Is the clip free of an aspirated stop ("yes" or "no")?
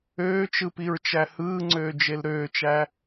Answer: yes